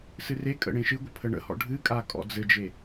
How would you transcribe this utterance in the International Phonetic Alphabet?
sɨrekʼə̰ ɽẽʃɨɡʷə pʰəɳə̰hɔ̰ ɖʱɨkʼa kʼɔ̰d͡zɘd͡ʒe

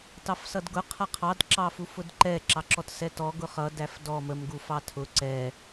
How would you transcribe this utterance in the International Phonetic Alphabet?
tɑfsʌdɡʊ qʰʌqʰɑd ǁɑfufʊdǃɛ ǁɑǁɔtsɛtɔ ɡʊχʌ dæfdɔ məm ɡufɑtʰʊ ǀɛ

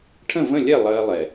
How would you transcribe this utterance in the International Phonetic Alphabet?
ʈʰə̃˦˨və̃˦˨lʲɛ˦˨ lˠɜ˦lˠɛ˨

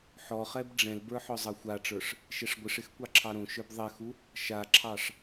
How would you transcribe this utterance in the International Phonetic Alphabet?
ħɔχɛb ɖ͡ʐɛ̃lbə˞ ħɔzˤɑxʷaʈ͡ʂə˞ʂ | ʃɛʂɡʷɪʂɪx kʷɑǁʰɑɾõʃə˞b ðˤɛxu | ʃaǁʰɑʂ

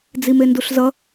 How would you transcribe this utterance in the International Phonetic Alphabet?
d͡zimenduɬzʌ

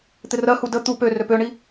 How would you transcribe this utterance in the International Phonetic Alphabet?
t̪ɪrɜhu də t̪u pø røpøɳi

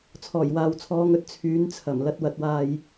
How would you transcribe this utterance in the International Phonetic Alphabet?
t͡sʰɔː˨˩jwaː˨wt͡sʰɔː˨˧ŋɵ˥t̚ t͡sʰyː˨˥nt͡sʰɐ˨˩mlɐ˧t̚ wɐ˨˥t̚waː˧j

